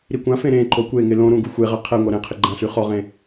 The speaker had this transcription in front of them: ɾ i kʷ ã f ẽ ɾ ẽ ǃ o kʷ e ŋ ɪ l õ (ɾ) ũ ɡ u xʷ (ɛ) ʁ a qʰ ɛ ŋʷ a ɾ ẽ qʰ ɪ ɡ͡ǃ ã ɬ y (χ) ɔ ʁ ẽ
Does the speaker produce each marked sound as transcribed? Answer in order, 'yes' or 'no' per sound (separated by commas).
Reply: yes, no, yes